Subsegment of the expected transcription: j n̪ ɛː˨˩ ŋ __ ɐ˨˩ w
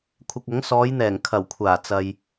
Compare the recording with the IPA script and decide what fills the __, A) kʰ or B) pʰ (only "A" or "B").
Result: A